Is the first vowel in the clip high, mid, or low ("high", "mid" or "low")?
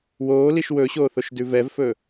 mid